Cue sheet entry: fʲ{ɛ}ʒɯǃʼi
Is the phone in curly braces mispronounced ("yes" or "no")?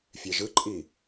no